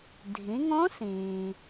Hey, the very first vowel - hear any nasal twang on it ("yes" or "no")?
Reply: yes